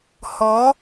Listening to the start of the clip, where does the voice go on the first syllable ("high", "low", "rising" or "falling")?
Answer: rising